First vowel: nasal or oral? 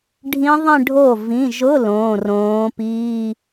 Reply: nasal